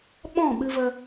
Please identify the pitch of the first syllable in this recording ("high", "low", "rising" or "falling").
falling